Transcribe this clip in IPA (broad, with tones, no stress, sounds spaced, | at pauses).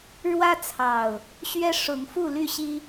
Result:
ɻ w ä˦ t͡sʰ ɑ˨˩ ʊ̯ | ɕ ɥ ɛ˦ ʂ ʊ˨˦ ŋ f u˥˨ l y˥˨ ɕ i˦